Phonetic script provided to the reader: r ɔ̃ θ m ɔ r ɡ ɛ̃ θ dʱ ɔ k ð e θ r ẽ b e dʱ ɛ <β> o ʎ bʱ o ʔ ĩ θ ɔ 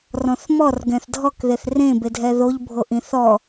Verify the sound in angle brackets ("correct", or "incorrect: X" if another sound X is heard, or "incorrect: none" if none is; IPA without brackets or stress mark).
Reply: incorrect: ð